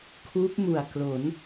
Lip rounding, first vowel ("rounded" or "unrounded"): rounded